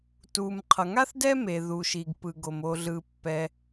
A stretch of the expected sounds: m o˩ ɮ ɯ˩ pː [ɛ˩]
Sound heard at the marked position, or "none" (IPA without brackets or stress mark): ɛ˩